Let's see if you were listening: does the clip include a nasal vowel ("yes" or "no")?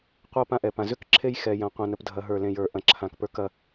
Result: yes